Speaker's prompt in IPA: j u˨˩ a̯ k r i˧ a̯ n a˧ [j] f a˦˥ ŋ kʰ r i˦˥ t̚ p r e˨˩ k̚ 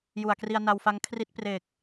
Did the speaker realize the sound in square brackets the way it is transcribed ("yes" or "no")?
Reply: no